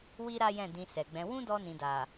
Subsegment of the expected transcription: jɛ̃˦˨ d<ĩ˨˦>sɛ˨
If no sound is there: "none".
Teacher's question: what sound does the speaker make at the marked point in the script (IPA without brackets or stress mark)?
ĩ˧